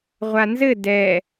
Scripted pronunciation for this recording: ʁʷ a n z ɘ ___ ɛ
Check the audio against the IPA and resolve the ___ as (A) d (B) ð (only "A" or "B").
A